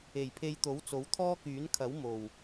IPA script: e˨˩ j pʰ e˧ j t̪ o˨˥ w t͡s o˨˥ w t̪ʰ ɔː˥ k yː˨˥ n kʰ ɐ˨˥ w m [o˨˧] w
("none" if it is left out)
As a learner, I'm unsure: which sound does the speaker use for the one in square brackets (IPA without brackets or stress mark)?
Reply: o˨˩